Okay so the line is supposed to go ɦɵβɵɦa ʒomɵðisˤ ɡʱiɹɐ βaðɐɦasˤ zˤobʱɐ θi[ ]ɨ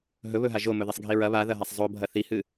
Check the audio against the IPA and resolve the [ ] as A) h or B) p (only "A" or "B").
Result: A